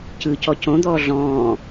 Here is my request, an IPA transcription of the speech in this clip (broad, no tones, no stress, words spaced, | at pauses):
cɯcɔ cõd̪ɔː ɮɔ̃ː